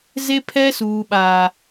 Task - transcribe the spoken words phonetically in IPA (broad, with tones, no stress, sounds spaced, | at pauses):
z e˦ pʰ ɛ˦ s uː˦ ɓ aː˦